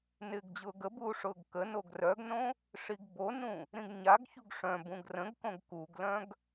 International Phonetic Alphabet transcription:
nɪːɡd͡ʑʊːɡəbuː ʂʊːɡkənoɡ rœɡnõ | ʂiɡbonũ | ɾĩɡɲaɡçuɡ ʂœ̃bũɡ rə̃ɡkõɡ kuɡlœ̃ɡ

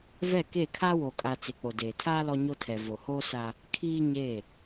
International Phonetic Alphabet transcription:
vɛ˦˨ke˦˨ kʰa˦wo˨kʼa˨ t͡se˨k͡po˨deː˨tʰaː˦ lɔ˦ɲo˦tʰɛ˨ vo˨hoː˦sa˦ | kʰiː˦ɲe˦˨

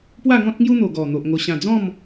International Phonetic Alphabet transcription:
pwa˥˧ŋɔ̃˦t̚ŋju˦n̪o˨˩ ɡɔ˨˩n̪o˨ʔ ŋo˨˩ɕã˨˩d͡zɔ̃˥˧m

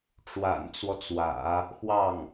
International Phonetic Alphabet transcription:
ʈ͡ʂwa̰˨˩nt͡swɔ˦t͡swä̰˨˩˦ | xwɑ˥˩ŋ

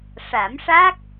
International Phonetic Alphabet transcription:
ʂa˨˩˦mʂa˦˥k̚

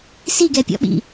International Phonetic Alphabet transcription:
siɡɛpʲɔ̰ɓḭ

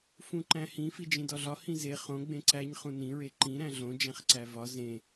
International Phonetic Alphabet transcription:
fũǃæ̃hĩ fid͡ʒĩdɒɮɒ hĩze χõ ɡ͡bẽǀæɲ χũnĩ ɹeǃĩ ɾæ̃ɮõ d͡ʒæ̃χǀævɒ zẽ

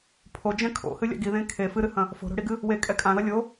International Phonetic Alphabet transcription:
pʰod͡ʒɛ̃ kʰo̰hɨlʲa̰ ɡiðẽ kʰe fɨɾɨhɐ̃ | fo̤ɾo̤ɽiɡɨ | wekʼɛ kʼãðɐ lʲo

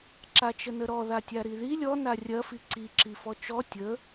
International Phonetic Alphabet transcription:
ǁat͡ʃənəɾɔ ðatʲaɾiði lʲɔ narʲɐ fiǀi ǁifɔt͡ʃɔ tʲə

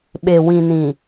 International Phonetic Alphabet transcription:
ɓe˨ wĩ˨nĩ˨

